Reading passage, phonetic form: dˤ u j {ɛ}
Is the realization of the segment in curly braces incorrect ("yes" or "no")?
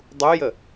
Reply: yes